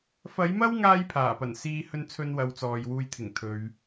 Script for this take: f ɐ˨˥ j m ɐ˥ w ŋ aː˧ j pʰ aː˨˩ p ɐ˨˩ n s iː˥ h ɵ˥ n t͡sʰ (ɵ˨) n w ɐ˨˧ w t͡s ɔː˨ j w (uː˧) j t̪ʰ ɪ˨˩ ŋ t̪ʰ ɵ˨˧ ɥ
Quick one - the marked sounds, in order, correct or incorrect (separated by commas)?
incorrect, correct